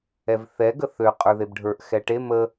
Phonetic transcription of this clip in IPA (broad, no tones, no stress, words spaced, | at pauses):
ɛvθɛ ɡəθø qʼə˞ðebɖʱə˞ʔ xɛʈe mə